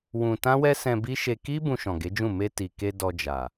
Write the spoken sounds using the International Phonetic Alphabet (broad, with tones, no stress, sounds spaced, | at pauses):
w ũ˧ t ã˦ w ɛ˦ s ɛ̃˧ b i˦ ʃ e˧ k i˦ b ũ˧ ʃ ɔ̃˨ ɡ e˨˦ d͡ʒ ũ˦˨ m e˧ t i˨ k e˧ d ɔ˧ d͡ʒ a˨